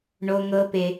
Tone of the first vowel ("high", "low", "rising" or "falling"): high